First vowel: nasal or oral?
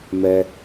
oral